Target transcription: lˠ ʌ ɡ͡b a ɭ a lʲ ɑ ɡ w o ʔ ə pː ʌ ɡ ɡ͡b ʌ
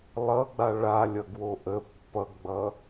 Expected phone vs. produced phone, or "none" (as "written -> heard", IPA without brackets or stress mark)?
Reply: ɑ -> ʌ